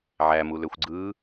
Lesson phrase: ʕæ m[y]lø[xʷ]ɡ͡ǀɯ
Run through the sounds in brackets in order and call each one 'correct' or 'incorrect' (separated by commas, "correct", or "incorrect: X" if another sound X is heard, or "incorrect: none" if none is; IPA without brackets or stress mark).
incorrect: u, correct